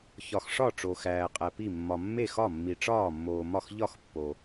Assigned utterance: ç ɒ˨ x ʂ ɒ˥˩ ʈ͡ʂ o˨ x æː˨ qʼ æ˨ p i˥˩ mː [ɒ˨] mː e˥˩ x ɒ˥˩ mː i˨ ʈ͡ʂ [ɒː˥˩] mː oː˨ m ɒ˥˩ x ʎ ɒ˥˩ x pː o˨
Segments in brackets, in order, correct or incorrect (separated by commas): correct, correct